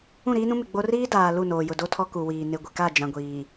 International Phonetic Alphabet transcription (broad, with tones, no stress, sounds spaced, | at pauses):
ũ˦˨ ɾ iː˦ n ũ˦ m ɪ˨ ɡ͡b o˦ r iː˦ d aː˨ l u˦˨ n oː˨ j ʊ˨ d o˦ tʰ ɔ˦ k u˨ w iː˨ n ɪ˨ ɡʷ ɪ˨ k a˦˨ d͡ʒ ã˨ ɡʷ iː˨